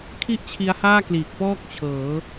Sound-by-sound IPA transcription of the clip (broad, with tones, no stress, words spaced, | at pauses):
kʰi˥˩ʔt͡ɕʰi˦˥a̯haː˥˩ kliː˨˩k̚pɔː˥˩k̚ t͡ɕʰɤː˩˦